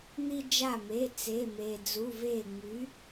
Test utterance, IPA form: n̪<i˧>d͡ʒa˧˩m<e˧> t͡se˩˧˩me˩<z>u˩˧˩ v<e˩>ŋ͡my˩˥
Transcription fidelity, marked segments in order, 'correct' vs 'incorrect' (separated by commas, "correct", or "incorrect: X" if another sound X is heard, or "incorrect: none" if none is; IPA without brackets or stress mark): correct, incorrect: e˩˧˩, incorrect: d͡z, incorrect: e˧˩